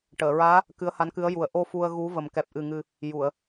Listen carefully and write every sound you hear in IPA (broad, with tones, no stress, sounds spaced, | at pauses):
ʈ əː˨˩˨ ɹ aː˧˥ | k ɨ˧˥ ə̯ h a˧˥ n k ɨ˧˥ ə̯ j u˨˩ ə̯ ʔ o˧ f u˧ ə̯ ɣ u˧˥ v ə˨˩ m k ɛ˨˩ p̚ ʔ ɨ˨˩ ŋ ɨ˨˩ | j u˨˩˨ ə̯